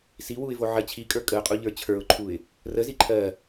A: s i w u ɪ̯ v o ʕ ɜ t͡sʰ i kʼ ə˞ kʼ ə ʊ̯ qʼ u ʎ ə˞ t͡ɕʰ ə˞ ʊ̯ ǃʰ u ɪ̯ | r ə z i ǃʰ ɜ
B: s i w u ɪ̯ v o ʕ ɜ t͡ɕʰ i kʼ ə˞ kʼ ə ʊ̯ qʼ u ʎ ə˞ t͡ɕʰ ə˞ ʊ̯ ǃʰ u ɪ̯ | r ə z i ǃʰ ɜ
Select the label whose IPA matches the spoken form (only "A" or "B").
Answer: B